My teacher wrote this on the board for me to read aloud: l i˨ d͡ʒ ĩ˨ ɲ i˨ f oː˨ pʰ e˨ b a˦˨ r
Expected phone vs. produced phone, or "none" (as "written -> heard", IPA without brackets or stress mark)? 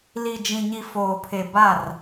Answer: none